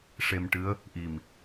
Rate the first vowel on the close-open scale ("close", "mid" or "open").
mid